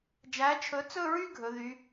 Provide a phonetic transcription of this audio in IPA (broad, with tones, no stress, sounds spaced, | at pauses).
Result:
d͡ʒ æ˨˥ t͡ʃʰ ɵ˨˥ t͡s ɵ˥˧ ɹ y˥˧ ɡʱ ɵ˩˧ ð y˩˧